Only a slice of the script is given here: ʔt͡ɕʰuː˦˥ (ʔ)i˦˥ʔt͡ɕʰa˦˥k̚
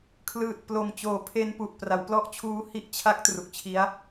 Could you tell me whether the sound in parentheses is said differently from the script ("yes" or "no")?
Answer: yes